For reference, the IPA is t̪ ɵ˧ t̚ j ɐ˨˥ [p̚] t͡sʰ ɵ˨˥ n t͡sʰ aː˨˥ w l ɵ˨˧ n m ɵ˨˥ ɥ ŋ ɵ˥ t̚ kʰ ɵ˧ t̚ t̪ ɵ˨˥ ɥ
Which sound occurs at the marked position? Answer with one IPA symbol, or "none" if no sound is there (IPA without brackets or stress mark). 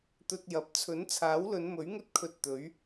p̚